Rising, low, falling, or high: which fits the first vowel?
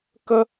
high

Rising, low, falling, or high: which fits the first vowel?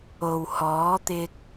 low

